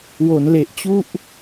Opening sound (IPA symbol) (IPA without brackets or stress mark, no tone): w